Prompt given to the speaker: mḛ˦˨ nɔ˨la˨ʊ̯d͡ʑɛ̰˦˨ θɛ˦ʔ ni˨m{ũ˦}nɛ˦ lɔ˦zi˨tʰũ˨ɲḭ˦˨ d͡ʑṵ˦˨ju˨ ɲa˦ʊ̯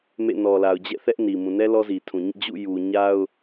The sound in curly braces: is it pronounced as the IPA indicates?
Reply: no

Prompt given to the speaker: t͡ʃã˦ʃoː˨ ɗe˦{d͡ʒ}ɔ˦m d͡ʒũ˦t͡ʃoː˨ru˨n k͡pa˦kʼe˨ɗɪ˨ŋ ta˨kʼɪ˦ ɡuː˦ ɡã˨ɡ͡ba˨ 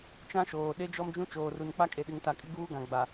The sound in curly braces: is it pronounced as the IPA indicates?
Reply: yes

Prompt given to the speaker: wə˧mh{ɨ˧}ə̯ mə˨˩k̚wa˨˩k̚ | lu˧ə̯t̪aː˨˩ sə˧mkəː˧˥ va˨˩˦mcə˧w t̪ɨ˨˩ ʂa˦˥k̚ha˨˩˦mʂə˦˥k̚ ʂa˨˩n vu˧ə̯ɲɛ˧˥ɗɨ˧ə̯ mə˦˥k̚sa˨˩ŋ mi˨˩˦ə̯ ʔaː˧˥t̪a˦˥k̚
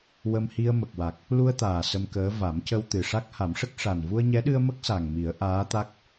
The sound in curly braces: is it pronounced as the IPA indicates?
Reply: no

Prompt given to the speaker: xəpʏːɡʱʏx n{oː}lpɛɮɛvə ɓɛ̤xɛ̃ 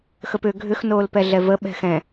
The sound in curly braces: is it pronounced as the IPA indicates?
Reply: yes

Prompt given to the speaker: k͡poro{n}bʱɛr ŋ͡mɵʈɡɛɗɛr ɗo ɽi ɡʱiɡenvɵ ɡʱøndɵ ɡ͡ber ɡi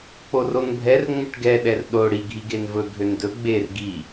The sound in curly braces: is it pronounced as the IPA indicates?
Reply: yes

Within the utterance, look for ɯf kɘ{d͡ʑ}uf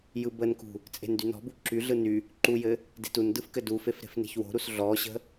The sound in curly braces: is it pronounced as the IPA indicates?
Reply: no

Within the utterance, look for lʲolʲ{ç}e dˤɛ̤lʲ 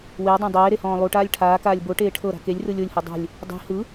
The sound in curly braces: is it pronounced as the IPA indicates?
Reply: no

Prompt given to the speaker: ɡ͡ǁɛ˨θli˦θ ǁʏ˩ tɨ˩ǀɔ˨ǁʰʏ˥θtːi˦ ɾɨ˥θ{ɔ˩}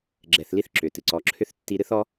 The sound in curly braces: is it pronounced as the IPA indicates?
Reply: no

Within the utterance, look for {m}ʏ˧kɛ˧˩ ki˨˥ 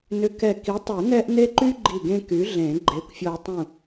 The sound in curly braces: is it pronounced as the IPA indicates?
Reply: no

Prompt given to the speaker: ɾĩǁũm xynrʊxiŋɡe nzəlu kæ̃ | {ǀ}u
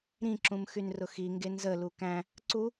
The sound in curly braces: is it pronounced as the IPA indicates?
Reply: yes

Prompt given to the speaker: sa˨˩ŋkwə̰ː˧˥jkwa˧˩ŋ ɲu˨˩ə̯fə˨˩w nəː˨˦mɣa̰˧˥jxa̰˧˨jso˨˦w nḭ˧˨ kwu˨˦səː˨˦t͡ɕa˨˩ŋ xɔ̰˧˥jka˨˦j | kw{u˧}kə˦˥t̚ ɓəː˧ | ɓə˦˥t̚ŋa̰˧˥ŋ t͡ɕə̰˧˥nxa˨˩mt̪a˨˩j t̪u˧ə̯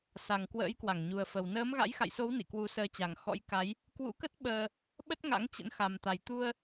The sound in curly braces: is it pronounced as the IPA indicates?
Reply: no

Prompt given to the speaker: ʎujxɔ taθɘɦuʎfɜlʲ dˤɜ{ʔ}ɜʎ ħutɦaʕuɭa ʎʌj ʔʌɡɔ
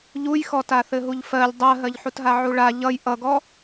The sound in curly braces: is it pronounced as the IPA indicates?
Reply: no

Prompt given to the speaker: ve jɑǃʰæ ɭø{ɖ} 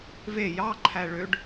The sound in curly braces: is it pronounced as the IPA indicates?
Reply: yes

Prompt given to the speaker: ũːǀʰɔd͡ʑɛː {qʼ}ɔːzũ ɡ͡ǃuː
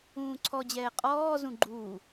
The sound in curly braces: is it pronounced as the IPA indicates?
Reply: yes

